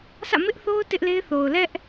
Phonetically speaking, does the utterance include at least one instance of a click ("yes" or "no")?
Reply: no